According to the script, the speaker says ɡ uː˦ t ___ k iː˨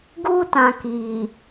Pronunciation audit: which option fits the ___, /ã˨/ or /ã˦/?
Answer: ã˨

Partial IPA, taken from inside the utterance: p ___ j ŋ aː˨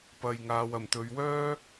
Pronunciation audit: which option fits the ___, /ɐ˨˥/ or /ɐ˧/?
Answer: ɐ˧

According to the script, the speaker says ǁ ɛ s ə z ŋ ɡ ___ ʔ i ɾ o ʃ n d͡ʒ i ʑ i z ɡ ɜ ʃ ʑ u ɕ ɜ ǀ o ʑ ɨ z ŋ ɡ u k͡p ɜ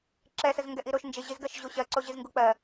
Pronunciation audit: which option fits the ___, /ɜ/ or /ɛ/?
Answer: ɛ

